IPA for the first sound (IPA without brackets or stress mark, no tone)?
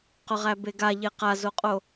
q